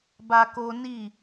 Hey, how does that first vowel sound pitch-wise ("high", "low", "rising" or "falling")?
high